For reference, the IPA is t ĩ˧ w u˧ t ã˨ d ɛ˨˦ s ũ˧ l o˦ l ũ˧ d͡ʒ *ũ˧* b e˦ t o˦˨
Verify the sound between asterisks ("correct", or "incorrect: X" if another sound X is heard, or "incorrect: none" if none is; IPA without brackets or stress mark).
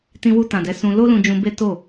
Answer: correct